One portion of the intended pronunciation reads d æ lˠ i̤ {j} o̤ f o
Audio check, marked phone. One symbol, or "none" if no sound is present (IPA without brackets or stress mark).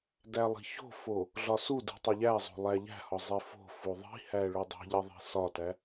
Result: ç